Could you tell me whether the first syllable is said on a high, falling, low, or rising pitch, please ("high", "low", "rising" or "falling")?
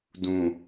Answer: low